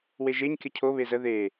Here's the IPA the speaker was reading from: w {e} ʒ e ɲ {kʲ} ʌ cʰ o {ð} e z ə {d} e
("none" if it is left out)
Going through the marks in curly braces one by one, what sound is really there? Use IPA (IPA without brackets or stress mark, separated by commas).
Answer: e, kʲ, β, ð